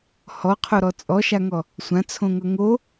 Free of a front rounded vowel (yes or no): yes